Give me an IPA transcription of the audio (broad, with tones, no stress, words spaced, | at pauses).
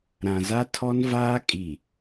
ɾã˨za˦tʰɔ˦nvaː˦ kʼi˨